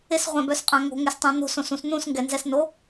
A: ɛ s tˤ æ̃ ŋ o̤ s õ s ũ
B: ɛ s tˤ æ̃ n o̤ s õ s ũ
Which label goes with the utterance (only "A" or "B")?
B